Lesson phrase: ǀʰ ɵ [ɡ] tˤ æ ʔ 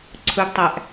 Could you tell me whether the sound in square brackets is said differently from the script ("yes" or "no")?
no